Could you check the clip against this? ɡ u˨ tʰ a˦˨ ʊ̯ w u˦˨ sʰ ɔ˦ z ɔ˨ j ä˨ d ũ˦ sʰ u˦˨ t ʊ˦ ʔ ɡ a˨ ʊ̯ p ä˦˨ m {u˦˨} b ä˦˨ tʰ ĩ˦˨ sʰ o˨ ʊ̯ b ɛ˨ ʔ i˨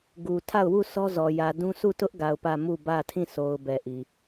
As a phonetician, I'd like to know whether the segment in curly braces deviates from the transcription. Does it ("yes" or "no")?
no